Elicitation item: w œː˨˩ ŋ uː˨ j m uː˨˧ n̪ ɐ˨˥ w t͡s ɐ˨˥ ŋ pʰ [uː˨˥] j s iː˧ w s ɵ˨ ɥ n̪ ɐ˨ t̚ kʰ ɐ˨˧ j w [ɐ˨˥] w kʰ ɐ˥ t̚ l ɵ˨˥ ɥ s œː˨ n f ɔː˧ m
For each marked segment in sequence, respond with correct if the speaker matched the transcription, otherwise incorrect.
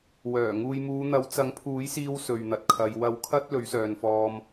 correct, correct

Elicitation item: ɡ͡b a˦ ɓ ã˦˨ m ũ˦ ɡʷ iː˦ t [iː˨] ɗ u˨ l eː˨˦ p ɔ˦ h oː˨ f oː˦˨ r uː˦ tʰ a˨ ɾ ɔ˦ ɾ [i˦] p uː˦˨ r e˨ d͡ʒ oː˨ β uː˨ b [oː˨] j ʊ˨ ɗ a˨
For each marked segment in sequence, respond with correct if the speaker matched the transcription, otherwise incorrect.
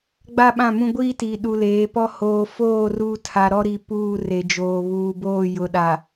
correct, incorrect: i˨, incorrect: oː˦˨

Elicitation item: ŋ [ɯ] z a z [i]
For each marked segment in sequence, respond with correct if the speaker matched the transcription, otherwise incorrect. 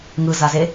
correct, incorrect: e

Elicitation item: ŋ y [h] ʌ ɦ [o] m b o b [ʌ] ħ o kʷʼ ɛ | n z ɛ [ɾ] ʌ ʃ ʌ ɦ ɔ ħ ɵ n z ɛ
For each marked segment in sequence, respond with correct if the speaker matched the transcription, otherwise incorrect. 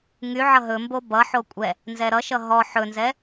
incorrect: ʕ, incorrect: ɵ, correct, correct

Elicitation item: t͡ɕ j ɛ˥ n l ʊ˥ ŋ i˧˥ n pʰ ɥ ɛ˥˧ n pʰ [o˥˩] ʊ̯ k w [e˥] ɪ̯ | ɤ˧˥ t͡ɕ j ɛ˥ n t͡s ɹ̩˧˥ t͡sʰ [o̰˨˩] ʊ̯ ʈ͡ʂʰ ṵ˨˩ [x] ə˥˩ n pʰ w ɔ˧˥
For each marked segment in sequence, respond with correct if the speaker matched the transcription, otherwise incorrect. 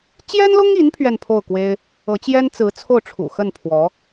correct, correct, incorrect: o˥˩, correct

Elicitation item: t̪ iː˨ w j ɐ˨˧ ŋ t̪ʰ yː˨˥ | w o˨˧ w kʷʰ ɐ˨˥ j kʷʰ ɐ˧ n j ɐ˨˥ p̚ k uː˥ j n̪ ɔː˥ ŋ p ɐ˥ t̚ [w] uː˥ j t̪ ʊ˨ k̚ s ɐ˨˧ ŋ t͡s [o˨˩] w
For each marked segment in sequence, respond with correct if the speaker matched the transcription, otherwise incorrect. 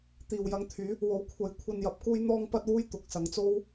correct, incorrect: o˥

